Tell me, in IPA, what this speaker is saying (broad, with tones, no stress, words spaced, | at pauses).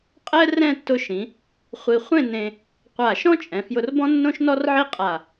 qʼɛ˥ rɛ̃˥˧tːʊ˧ʃĩ˩˧ | χʷi˧ χʷẽ˥˧ nẽ˧ | qʷa˧˩ʃɔ̃˥t͡ʃʼɛ̃˩˧fjʊ˧r bɔ̃˥nːõ˥ʃnɔ˥rʕi˥ qʼa˧˩